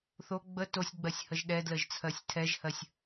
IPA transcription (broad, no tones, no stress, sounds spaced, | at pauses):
θ o ɡ͡b ə t o sʲ ɡ͡b ɜ sʲ h ə ʒ ɗ ɛ d l ə ʒ t͡sʰ ɜ sʲ tʰ ɛ ʒ h ɜ sʲ